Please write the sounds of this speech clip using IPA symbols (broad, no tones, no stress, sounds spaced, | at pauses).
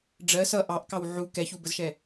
ɖ͡ʐ ɜ s ʌ ʔ ɑ ʔ k ɑ w ʕ u k ɛ ç u b ə z ʃ ɛ